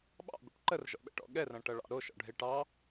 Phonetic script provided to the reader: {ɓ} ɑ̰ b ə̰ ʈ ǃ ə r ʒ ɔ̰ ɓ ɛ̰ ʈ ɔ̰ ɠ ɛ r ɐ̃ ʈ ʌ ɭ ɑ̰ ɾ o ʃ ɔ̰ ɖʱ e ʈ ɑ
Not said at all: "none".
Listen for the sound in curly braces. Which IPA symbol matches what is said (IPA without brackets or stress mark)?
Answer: ɓ